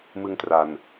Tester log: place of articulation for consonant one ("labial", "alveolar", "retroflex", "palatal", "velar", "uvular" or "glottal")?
labial